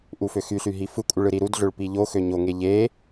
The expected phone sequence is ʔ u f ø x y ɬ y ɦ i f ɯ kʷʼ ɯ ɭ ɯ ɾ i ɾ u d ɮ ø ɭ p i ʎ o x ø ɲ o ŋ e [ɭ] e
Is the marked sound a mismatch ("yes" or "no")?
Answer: yes